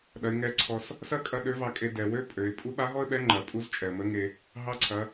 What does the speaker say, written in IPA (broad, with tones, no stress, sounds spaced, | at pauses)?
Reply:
ɗ ɐ˩˧ ɪ̯ ŋ ɛ˧˥ ǀʰ ɔ˧ s | s ɐ˥ kʼ ɐ˧ ɗ ø˧˥ v ɑ˧ kʼ e˧ d ɛ˩ w ø˥ pʼ ø˩˧ ɪ̯ pʼ u˧˥ ɓ a˧˥ ɦ ɔ˥ ə̯ ɓ ɛ˧˥ ŋ͡ǃ ɐ˩ pʼ u˧˥ z t͡ʃʼ ɛ˩ ə̯ m ə˧˥ ŋ e˧ | ɦ ɑ˧˥ ǀʰ ɐ˩˧